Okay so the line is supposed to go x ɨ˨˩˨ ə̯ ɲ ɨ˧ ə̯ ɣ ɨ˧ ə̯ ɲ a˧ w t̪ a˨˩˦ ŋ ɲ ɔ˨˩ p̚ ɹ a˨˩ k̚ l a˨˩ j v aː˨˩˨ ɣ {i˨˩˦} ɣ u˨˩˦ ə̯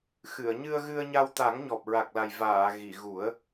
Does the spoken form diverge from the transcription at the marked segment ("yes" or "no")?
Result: yes